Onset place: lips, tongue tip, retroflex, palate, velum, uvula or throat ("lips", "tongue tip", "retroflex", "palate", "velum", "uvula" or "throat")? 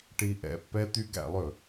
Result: retroflex